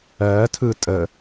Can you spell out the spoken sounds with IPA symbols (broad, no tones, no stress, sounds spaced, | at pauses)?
ɜ tʰ ɯ tʼ ə